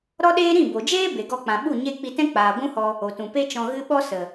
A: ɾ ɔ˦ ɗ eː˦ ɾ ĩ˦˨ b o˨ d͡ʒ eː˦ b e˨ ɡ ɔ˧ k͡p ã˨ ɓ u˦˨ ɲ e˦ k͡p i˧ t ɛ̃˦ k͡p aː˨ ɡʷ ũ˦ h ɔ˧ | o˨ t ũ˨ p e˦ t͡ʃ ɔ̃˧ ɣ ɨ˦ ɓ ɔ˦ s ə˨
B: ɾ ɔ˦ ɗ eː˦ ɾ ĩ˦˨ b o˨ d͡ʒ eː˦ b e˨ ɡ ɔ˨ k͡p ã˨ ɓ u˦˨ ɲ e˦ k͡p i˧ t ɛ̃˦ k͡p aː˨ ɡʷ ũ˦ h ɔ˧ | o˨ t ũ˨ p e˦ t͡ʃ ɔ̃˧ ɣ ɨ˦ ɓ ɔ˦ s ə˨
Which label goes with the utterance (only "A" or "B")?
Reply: A